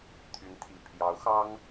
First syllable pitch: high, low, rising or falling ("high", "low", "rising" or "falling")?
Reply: rising